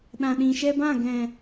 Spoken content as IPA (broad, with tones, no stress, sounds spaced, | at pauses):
ɗ ã˨ ɗ ĩ˨ ʃ ɛ˧ b ã˦˨ ɡ ɛ̃˨